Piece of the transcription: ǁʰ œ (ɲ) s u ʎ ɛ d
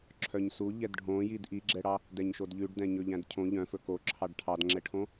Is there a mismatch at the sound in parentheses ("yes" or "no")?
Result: no